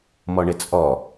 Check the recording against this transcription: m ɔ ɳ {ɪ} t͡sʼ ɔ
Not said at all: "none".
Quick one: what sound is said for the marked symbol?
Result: ɪ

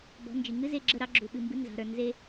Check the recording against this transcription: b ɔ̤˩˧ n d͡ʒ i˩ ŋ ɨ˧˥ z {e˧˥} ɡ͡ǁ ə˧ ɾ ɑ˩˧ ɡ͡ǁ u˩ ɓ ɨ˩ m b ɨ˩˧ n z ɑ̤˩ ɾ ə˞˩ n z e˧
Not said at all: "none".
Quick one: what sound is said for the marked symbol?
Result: e˧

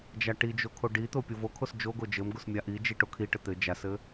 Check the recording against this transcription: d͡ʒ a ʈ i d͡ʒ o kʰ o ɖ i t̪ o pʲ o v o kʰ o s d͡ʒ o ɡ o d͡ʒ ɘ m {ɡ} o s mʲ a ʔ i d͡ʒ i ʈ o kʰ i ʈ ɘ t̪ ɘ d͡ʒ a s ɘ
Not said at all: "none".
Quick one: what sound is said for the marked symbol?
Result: ɡ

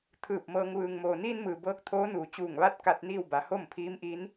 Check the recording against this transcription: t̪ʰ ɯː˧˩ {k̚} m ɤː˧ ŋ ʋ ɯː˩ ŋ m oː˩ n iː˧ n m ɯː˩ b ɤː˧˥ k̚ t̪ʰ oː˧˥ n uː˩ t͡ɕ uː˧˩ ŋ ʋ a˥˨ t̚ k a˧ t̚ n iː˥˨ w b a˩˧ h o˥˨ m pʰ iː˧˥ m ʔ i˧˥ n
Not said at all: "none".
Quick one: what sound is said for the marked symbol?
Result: p̚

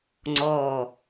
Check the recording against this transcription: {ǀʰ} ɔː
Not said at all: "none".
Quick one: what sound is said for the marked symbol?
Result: ŋ͡ǀ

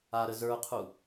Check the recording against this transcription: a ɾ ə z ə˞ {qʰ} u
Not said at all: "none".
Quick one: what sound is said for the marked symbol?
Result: qʰ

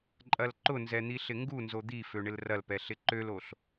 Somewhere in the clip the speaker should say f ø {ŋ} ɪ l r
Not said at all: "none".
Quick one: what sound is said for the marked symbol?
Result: ɳ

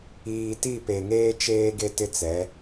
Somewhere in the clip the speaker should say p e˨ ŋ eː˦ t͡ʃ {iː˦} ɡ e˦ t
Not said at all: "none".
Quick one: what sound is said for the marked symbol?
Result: eː˦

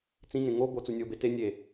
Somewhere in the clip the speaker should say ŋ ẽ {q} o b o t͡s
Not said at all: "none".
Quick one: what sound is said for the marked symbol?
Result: ŋ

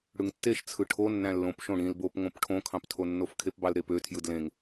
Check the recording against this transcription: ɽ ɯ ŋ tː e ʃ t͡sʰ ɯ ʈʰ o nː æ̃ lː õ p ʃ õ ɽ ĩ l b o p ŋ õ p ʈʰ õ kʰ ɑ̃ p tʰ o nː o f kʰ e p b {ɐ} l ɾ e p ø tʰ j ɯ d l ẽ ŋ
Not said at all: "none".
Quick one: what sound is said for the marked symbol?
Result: ɑ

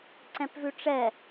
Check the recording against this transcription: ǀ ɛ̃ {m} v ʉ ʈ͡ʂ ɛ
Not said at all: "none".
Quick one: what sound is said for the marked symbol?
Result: p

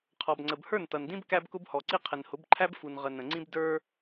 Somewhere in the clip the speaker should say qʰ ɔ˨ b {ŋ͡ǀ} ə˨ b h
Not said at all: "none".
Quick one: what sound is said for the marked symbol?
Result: ŋ͡ǀ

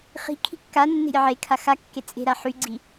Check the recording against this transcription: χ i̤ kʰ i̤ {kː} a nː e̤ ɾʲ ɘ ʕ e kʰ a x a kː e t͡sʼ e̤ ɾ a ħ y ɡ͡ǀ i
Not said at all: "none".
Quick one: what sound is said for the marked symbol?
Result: kː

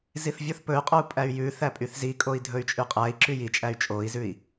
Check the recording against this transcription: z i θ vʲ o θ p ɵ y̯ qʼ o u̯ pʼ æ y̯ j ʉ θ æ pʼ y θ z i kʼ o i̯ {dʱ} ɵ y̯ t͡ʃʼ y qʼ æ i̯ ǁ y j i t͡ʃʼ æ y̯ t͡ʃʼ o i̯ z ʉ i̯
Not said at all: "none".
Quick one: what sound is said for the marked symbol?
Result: dʱ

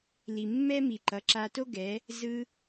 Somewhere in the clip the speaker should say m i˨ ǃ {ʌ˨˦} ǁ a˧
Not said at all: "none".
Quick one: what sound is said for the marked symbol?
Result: ʌ˨˦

